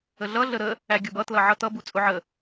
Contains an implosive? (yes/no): no